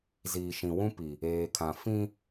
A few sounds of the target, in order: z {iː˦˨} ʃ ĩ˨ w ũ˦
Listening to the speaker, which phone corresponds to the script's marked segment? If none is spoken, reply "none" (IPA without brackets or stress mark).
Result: iː˨